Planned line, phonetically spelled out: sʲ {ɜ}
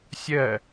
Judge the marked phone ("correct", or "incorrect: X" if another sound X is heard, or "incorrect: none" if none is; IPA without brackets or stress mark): correct